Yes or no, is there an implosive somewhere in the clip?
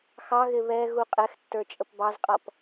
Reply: no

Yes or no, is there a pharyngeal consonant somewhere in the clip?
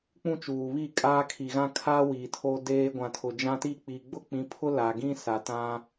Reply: no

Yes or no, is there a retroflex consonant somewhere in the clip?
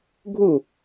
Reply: no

